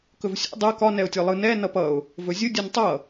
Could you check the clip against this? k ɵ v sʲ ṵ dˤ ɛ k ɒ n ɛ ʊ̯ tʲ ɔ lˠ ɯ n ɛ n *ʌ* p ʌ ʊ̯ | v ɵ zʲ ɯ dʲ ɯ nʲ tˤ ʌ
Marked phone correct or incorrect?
correct